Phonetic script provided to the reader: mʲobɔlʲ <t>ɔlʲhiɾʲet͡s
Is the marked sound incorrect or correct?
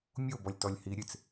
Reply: correct